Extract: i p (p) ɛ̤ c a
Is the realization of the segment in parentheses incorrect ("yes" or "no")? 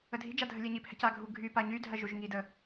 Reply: yes